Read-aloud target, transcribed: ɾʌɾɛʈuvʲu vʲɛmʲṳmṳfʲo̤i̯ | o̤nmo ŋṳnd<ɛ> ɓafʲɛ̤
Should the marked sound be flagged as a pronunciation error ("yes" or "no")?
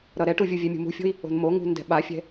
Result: yes